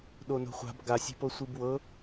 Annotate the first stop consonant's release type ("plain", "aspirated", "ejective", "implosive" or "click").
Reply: implosive